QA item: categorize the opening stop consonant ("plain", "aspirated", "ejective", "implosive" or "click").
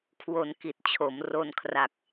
aspirated